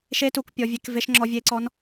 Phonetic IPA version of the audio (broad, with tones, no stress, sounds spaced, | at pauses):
ʃ e˧˥ t u˩˧ k pʲ ɔ˩˧ vʲ e˩˧ k v e˧˥ ʃ ŋ͡ǁ ɔ˧˥ vʲ e˧˥ ǀ ɔ˧˥ n